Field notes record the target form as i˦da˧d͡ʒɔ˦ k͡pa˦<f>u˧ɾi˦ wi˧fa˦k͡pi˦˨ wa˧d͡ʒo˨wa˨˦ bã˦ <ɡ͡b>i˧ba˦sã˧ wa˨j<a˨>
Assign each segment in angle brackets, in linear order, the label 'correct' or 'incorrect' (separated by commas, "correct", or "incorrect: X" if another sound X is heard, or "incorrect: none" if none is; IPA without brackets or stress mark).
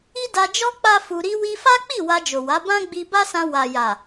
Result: correct, correct, correct